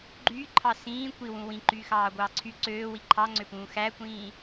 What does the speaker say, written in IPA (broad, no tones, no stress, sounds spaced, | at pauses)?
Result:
ɡ͡ǃ yː ǃʰ ɑ s ĩː kʷ i w ũ w ĩ ǃ yː x ɑː ɡʷ ɑː ǀʰ y ǀ øː w i ǃʰ ɑ ŋ͡ǀ ø p ũː x æ kʷ ĩː